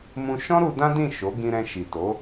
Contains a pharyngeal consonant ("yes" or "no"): no